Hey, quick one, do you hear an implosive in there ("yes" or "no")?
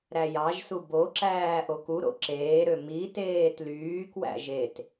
no